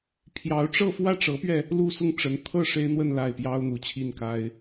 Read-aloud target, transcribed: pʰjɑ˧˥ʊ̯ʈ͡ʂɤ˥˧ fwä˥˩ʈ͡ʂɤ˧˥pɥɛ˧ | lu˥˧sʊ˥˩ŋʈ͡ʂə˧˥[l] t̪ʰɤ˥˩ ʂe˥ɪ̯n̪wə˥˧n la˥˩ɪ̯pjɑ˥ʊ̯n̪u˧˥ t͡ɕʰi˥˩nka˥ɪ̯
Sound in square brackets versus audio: incorrect: n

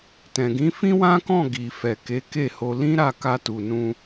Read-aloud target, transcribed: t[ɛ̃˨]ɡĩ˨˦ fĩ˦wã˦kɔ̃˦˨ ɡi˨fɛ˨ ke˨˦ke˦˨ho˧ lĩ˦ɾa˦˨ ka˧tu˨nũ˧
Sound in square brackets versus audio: correct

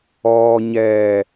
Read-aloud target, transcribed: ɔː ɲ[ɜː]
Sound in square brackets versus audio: incorrect: ɛː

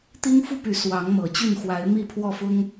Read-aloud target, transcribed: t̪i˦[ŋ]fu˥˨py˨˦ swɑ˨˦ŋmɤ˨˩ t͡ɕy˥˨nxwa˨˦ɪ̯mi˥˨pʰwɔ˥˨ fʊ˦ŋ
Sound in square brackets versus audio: correct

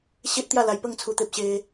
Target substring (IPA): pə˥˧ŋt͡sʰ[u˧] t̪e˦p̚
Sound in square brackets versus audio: correct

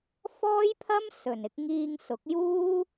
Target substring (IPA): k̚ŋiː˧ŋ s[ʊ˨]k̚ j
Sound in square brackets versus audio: incorrect: ʊ˨˥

